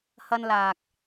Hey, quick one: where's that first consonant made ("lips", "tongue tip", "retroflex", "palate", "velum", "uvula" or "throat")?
throat